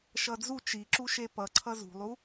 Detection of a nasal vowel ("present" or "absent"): absent